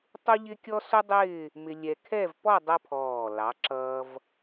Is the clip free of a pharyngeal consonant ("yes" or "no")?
yes